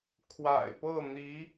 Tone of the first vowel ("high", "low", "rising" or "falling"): low